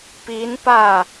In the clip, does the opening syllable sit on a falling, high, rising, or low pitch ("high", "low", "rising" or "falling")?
rising